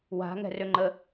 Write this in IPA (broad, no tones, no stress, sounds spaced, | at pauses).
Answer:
w a̤ ŋ ɛ̤ r ø ŋ͡ǃ ə